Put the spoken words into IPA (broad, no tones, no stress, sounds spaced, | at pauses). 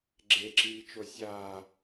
ɡ͡ǁ e ǁ iː t͡ʃ o sʲ aː